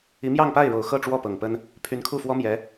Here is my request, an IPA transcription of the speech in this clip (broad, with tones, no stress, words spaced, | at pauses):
i˧˥mjɑ˥˧ŋpa˥˩ɪ̯ɻo˨˩ʊ̯ xɤ˥˧ʈ͡ʂwɔ˥˩ pɤ˨˩ŋpə˥n | pʰy˧˥nkʰu˥˩fwɔ˥ mjɛ˧˥